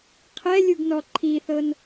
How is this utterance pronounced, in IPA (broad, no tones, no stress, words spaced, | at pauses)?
qʰɛlʲuɡnɔ ǃʰiθɤn